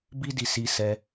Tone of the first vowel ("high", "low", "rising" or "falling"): high